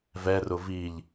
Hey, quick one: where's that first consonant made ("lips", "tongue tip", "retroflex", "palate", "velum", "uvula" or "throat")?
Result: lips